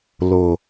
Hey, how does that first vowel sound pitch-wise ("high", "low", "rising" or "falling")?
low